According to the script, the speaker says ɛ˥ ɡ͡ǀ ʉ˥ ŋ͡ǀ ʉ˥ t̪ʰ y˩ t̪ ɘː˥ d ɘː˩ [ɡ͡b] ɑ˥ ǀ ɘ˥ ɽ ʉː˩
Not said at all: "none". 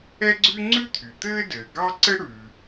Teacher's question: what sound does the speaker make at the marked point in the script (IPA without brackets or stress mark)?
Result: ɡ